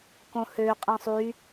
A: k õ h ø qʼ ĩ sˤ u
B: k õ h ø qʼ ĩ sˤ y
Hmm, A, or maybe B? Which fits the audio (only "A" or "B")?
B